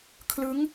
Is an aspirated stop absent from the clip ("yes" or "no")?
no